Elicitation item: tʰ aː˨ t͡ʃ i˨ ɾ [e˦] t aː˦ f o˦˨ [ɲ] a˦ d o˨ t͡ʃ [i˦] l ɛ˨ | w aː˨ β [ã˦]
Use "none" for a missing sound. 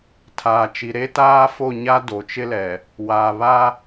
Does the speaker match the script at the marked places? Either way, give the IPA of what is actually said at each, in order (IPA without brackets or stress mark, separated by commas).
e˦, ɲ, ɪ˦, a˦